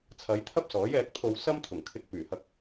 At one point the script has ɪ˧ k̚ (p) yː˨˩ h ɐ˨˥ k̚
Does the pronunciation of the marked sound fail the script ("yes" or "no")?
no